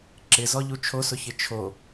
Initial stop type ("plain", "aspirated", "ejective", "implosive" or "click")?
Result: click